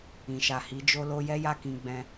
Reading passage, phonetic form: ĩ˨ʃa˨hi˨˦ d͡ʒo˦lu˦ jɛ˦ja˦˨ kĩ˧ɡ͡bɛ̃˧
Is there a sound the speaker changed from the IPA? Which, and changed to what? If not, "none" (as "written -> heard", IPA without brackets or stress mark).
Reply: u˦ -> o˦